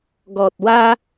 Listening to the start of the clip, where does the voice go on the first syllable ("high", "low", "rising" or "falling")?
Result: low